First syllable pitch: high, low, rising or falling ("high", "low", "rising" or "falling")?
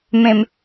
low